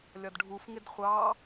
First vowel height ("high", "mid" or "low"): low